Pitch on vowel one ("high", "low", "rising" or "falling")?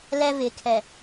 high